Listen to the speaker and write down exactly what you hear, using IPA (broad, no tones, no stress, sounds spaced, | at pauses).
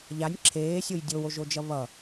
ʎ a nʲ ǁʰ eː sʲ o j dʲ o w o ʒ o d͡ʒ ʌ β ʌ